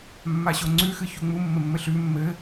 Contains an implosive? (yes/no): no